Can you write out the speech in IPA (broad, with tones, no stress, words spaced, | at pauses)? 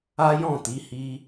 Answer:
a˦jɔ̃˦˨ti˨˦hi˦